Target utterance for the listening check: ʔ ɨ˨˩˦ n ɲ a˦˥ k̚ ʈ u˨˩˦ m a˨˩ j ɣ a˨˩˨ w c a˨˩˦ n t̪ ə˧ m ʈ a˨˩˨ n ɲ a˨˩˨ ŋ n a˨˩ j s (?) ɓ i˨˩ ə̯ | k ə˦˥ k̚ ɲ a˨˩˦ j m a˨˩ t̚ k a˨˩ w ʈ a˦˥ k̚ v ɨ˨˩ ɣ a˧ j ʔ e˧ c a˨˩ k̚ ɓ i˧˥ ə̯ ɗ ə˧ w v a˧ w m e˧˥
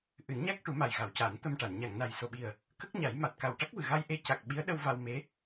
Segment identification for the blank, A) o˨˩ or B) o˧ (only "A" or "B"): A